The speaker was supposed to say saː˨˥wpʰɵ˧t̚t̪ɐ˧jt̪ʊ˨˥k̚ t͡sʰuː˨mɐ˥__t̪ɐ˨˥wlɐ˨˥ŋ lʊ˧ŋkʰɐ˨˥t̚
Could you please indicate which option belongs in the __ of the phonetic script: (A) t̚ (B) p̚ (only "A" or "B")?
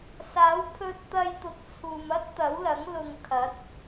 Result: A